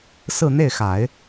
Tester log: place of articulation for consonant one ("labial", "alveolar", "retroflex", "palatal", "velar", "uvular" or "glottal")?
alveolar